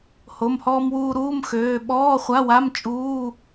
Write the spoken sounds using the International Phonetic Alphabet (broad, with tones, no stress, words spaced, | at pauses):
ho˩˧˩mhɔː˧mwuː˧ ɾuː˧˥˧mxøː˩˧˩ ɓɔː˧˥˧χʷa˧˥˧wa˧˥˧m t͡ʃʼuː˧˥˧